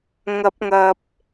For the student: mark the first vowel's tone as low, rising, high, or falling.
rising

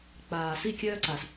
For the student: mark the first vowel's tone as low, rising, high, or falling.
low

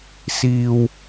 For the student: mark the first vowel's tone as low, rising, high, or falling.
low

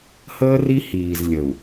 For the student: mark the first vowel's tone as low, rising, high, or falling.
high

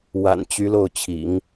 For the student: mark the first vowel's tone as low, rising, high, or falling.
low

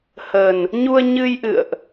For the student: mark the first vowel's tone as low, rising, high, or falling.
low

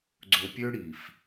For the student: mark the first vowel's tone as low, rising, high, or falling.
low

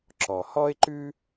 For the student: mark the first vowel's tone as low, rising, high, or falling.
low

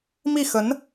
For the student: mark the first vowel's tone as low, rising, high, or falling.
falling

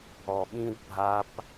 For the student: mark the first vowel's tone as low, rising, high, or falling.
low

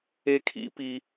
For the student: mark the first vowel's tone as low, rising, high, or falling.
high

